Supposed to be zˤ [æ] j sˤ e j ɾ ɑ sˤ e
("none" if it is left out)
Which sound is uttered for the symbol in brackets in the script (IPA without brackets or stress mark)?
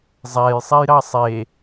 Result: æ